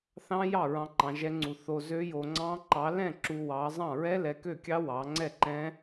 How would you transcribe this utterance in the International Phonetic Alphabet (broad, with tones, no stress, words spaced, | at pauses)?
θɑ̃˦˥jɑ˥˩ ɹɑ̃˦˥ǃɑ̃˨˥ʒɛ˦˥ŋ͡ǀu˧ θo˧ zø˦˥jo˧ŋ͡ǀɑ̃˦˥ ǃɑ˨˥lɛ̃˥˩ ǁu˧wɑ˨˥ zˤɑ̃˥˩ɹɛ˦˥lɛ˨˥ kø˥˩kʲɑ˦˥ wɑ˨˥ ŋ͡ǀɛ˥˩ǃɛ̃˦˥